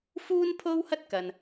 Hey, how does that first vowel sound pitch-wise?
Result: high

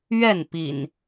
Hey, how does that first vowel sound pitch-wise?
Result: falling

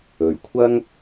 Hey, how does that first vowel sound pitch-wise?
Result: low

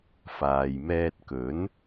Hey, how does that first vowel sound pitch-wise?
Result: low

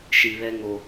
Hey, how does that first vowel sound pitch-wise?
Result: low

